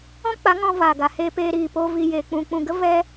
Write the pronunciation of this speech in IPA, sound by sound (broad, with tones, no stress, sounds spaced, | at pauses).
ɔ̃˦ k͡p a˨˦ ŋ ɔ̃˧ v aː˨ ɡ a˨ h eː˧ p eː˧ ɾ iː˨ p o˧ v i˨ j eː˨ k͡p ũ˨ k͡p ũ˨ ɡ ə˦ v ɛ˦